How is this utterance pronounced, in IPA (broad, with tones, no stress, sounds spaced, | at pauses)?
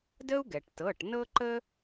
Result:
d ə˥ u̯ ɡ ɛ˩ ʈ t ɤ˩˧˩ ʈ n ɤ˥ ǃ ə˥